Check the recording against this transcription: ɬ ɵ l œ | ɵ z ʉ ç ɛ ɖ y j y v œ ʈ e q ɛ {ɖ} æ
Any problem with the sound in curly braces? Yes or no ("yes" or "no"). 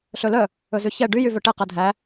yes